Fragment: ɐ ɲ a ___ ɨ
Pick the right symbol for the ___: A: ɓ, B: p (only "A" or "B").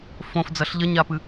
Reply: B